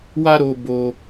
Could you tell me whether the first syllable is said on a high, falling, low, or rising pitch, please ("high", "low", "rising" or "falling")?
high